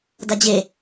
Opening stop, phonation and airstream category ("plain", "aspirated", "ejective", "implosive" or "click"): plain